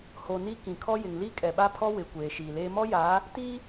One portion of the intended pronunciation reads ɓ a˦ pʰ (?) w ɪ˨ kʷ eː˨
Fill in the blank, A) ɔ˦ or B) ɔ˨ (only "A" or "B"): A